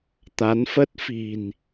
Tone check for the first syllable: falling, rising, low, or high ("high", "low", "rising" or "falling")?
rising